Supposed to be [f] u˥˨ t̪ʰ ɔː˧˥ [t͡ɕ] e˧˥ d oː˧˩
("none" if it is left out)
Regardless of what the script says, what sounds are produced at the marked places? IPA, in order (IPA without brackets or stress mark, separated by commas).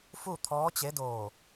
f, t͡ɕ